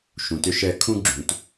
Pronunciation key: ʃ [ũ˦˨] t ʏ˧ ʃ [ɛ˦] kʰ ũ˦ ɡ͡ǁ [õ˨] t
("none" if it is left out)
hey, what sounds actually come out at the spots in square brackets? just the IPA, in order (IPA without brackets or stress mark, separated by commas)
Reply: ũ˨, ɛ˧, ũ˨